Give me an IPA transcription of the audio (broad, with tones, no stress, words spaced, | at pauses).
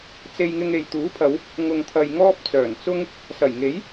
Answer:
t͡se˧jŋɪ˧ŋ e˨jt̪uː˨˥pʰɐ˨˧w | ŋʊ˨ŋt̪ʰɐ˨j ŋɔː˥p̚t͡sœː˨˩nt͡sʊ˥ŋ | sɐ˨˩jŋe˨˥j